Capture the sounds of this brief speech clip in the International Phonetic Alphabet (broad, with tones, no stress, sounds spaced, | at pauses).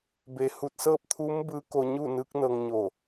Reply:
b e˩˧ h uː˧˩ t̚ s ɤː˥˨ p̚ t̪ʰ uː˧˥ m b ɯː˧˥ k o˧ ɲ u˥˨ n ɯː˧˥ k̚ n ɤː˧ ŋ ɲ o˧˩